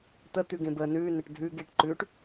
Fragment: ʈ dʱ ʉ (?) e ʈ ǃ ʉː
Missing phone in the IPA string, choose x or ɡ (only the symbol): ɡ